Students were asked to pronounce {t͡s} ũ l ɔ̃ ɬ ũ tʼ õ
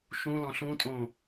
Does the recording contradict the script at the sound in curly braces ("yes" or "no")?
yes